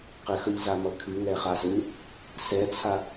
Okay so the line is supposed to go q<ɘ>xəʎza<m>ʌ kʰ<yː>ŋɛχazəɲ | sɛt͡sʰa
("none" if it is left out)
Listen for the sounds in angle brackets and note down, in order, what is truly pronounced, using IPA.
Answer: ɘ, m, y

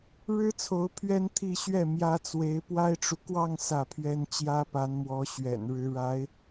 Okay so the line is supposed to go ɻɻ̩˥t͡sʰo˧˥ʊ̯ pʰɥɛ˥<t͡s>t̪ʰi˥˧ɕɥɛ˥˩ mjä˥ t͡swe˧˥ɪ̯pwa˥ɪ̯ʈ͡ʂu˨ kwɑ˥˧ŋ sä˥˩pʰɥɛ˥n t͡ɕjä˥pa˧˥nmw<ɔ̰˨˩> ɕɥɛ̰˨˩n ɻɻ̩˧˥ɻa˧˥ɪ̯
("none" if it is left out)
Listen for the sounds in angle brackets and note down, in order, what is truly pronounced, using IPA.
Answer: n, ɔ˧˥

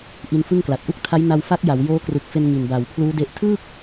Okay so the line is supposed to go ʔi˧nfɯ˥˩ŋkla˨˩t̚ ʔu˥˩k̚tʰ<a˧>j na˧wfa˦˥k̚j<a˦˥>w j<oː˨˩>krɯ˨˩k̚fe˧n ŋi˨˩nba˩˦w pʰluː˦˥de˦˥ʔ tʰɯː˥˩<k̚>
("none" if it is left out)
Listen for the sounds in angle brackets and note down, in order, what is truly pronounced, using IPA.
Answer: a˦˥, a˩˦, oː˦˥, k̚

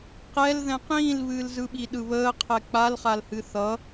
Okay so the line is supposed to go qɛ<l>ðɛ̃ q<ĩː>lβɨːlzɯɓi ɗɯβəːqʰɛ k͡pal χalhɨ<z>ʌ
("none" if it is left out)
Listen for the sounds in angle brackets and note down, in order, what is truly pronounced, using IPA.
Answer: l, ĩː, θ

